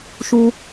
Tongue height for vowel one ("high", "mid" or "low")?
high